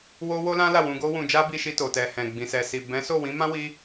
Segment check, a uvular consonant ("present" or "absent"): absent